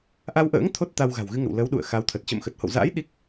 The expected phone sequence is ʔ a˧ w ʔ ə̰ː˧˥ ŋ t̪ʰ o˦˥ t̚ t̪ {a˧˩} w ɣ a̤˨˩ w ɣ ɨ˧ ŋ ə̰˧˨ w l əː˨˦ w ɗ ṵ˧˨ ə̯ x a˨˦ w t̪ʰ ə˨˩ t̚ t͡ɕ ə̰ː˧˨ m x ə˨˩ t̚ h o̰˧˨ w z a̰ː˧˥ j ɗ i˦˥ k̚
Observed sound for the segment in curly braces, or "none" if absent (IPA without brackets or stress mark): a˧